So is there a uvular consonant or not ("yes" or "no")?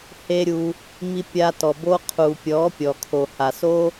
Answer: yes